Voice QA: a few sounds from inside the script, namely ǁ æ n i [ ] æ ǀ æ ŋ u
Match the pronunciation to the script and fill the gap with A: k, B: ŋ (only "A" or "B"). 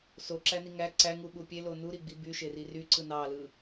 B